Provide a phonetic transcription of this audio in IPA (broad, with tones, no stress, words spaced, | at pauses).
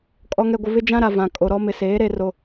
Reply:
kʼɔ˨ŋɛ˨ɡʷɪ˨ βɪ˦d͡ʒã˦ɾa˨ vã˨ kʼo˨ɾɔ˦ mɪ˨seː˨˦ɾe˨ro˨